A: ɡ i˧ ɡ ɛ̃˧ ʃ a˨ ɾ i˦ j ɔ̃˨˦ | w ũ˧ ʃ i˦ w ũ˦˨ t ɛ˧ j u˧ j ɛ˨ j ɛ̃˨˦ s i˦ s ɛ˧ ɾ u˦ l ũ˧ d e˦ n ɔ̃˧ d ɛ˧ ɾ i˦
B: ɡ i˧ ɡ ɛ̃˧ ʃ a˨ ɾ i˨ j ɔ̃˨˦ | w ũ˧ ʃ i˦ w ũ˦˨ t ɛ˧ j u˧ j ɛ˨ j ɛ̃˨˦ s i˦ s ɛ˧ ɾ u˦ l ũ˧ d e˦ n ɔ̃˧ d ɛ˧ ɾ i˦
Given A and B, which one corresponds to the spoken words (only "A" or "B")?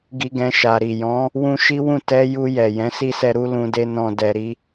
B